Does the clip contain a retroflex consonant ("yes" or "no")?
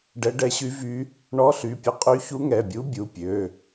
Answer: yes